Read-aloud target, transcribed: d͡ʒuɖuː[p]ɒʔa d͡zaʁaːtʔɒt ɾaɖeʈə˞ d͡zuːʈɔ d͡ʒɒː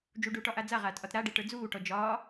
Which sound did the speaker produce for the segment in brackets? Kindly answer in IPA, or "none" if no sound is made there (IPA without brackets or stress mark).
ʈ